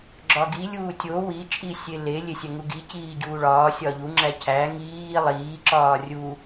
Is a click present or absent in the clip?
present